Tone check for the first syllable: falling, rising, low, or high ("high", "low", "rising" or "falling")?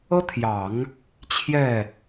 high